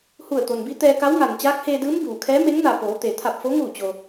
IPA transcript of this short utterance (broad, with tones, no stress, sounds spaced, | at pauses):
h u˧˩ ə̯ t̪ o˩ n b i˧˥ t̪ ɛː˧ k a˧˥ w ŋ a˩ n t͡ɕ aː˧˥ k̚ h eː˧ d ɯː˧˥ m b uː˩ kʰ ɛː˧˥ m e˧˥ ŋ n a˧˩ p oː˩˧ t̪ e˩ t̪ʰ a˧˩ p̚ f o˧˥ ŋ uː˧˩ t͡ɕ o˩